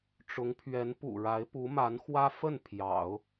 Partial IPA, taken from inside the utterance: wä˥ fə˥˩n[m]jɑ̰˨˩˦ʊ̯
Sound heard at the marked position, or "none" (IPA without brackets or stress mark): pʰ